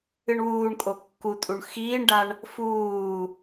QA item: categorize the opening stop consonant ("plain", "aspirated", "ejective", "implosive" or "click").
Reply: ejective